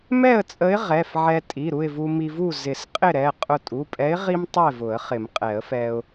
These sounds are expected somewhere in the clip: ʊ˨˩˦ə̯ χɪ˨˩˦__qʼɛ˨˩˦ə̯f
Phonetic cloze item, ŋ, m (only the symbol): m